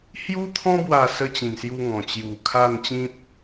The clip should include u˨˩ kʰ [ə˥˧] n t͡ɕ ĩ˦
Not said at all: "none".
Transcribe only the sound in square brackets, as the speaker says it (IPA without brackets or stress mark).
a˥˧